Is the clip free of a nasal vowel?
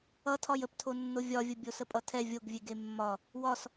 yes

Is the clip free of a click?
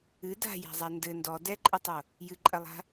no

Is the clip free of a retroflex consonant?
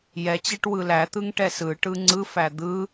no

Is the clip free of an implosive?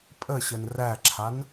yes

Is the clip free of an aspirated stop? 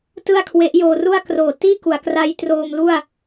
no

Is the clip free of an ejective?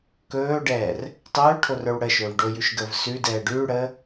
yes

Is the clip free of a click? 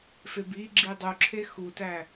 no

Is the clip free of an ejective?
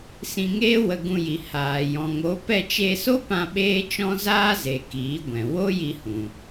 yes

